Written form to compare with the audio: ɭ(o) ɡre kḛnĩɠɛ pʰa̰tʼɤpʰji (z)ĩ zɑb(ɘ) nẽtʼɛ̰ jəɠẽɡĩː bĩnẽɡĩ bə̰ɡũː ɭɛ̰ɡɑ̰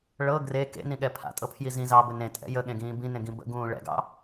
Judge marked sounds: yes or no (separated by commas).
no, yes, yes